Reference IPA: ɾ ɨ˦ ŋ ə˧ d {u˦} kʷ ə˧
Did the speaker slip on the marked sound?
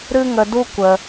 no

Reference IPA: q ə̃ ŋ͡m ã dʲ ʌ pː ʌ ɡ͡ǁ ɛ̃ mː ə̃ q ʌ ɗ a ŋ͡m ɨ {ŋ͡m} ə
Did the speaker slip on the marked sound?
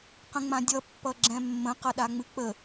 yes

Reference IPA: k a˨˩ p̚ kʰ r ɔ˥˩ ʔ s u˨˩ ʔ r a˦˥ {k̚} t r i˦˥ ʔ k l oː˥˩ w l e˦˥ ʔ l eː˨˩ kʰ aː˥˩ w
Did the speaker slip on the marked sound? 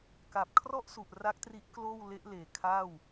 no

